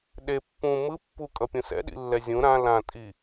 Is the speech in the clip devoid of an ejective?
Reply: no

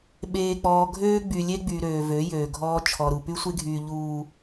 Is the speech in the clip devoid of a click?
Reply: yes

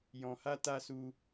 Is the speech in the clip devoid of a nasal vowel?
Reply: no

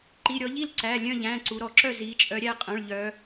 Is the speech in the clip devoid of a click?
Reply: no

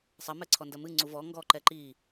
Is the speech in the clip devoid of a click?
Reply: no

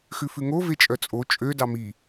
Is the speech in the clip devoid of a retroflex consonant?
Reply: yes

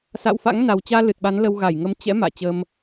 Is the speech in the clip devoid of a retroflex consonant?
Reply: yes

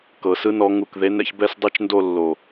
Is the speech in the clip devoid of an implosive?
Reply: yes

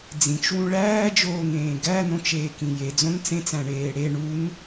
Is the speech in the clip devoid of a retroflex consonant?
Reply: no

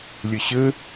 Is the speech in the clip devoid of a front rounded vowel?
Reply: yes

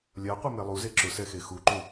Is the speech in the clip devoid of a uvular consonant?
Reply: no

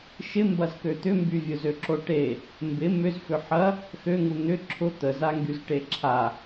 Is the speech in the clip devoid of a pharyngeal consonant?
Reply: no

